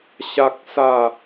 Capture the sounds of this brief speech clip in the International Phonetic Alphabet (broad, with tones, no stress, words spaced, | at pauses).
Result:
ɕa˦k̚ sa˥˧